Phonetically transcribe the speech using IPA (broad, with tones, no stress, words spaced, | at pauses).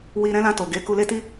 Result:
wi˧ɾɛ̃˦lã˧ to˨ɡe˨˦ ku˧le˦ti˦